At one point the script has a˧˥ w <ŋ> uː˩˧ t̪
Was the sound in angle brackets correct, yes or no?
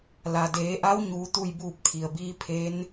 no